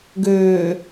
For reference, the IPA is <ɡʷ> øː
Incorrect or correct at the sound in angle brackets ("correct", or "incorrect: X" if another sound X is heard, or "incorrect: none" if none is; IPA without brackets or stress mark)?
incorrect: ɡ